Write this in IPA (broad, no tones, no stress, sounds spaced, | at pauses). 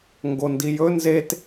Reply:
ŋ ɡ o n d i j ɵ n z e t